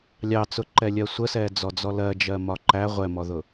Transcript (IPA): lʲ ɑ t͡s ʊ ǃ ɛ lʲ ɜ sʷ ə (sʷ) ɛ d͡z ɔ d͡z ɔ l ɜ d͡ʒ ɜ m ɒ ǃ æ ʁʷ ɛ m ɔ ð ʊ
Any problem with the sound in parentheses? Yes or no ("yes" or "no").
yes